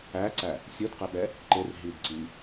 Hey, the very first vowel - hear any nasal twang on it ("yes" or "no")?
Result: no